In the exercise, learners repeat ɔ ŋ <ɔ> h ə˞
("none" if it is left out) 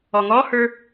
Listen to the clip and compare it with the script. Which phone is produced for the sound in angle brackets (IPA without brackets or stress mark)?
ɔ